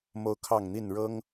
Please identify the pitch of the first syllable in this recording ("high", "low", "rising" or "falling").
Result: high